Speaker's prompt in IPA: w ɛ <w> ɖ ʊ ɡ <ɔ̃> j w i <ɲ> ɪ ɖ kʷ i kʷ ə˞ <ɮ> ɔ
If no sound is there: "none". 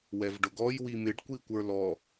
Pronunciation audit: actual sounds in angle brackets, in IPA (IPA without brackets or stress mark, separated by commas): v, ɔ, m, l